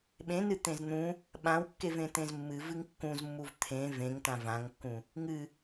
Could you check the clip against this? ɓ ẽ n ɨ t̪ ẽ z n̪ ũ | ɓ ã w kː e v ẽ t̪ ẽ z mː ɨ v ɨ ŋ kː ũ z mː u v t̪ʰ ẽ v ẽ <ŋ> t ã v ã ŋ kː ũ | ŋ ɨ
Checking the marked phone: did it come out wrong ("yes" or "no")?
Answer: no